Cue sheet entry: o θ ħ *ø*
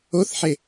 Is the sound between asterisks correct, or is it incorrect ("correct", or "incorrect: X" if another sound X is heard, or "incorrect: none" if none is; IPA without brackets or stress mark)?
incorrect: e